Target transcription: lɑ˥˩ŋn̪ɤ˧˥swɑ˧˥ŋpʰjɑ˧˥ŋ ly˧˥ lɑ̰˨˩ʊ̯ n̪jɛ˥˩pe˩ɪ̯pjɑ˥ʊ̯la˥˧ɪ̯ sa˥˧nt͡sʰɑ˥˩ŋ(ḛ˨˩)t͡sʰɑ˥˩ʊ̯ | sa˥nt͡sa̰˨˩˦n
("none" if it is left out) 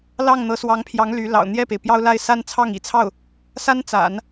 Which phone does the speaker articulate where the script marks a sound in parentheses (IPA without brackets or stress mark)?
ḭ˨˩